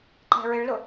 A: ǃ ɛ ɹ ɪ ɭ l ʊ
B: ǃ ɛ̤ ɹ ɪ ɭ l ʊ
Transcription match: B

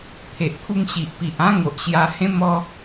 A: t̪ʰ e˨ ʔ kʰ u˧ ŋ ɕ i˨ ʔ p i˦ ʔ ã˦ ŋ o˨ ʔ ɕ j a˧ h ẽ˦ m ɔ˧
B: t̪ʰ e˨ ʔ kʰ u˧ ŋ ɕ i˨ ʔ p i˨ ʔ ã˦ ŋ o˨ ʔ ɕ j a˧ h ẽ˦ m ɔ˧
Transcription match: B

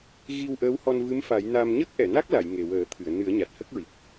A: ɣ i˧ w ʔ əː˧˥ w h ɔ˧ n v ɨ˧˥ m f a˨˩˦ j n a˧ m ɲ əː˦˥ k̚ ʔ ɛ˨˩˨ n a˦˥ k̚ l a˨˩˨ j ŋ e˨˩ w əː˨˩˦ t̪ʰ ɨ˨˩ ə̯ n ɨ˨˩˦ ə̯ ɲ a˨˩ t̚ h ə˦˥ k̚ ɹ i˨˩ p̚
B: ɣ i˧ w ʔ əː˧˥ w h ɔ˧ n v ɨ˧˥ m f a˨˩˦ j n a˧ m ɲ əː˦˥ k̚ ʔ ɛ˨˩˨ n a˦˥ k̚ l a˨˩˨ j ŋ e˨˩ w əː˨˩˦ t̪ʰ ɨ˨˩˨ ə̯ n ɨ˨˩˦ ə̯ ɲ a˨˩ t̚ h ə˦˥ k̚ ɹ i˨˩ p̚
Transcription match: B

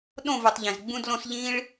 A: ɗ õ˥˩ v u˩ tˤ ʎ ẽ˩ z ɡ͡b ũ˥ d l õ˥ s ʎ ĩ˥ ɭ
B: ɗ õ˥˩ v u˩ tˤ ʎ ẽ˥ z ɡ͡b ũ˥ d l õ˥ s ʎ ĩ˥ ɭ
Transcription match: A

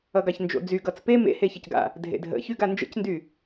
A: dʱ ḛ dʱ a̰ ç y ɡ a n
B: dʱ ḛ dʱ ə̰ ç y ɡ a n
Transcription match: B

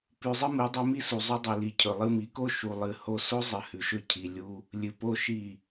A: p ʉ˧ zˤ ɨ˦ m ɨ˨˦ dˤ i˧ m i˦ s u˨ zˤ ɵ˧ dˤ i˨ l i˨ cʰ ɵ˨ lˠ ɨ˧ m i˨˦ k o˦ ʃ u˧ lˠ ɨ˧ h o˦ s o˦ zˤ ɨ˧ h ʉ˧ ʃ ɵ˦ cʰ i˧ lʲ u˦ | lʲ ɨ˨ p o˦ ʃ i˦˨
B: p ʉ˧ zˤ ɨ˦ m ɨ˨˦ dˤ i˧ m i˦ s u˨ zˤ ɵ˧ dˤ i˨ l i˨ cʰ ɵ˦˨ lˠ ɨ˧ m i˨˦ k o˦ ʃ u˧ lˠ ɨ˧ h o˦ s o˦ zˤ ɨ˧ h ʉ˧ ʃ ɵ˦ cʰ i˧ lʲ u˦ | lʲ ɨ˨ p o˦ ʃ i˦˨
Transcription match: A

